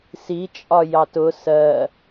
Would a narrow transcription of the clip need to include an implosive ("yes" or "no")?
no